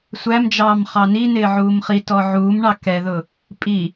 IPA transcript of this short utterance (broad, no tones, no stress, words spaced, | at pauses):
sʷæmd͡ʒɑːm χɑninɪː ʕuːmχitɔ ʕuːmɳɑ kɛðʊ | pʼi